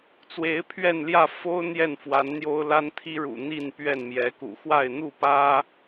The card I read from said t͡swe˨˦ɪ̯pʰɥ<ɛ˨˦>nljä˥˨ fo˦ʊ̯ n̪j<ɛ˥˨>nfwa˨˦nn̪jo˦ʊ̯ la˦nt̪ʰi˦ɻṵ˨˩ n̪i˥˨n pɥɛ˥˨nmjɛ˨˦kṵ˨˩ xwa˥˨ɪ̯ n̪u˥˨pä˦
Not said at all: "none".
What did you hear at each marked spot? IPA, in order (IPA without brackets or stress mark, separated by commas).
ɛ˥˨, ɛ˥˨